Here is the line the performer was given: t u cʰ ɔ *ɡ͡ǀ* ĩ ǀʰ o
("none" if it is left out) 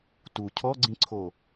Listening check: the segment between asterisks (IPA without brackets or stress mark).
ɡ͡ǀ